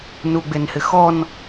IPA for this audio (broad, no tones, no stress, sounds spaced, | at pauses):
n u ɡ͡b e n h ɪ x ɔ n